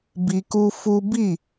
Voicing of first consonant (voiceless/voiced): voiced